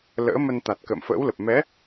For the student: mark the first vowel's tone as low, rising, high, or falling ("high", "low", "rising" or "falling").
rising